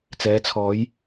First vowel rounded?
no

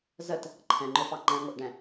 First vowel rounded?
no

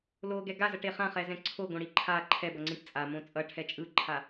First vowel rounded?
yes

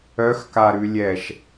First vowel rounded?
yes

